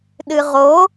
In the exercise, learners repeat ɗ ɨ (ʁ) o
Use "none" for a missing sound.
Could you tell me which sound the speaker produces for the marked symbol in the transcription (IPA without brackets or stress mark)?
ʁ